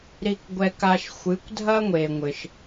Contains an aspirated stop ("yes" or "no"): no